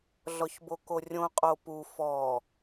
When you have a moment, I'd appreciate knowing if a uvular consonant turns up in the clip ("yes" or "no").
yes